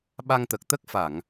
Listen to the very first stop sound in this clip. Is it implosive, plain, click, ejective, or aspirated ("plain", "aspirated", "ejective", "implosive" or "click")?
implosive